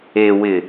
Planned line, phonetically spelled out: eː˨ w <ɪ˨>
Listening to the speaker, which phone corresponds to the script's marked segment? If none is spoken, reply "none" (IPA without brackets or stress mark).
ɪ˨